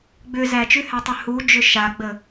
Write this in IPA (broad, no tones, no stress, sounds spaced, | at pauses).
ɡ͡b ʏ z æ t͡ʃ ʉ h æ tˤ ʏ h u d͡ʒ ʏ ʃ a ɡ͡b ə